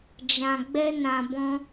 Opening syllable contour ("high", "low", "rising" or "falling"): low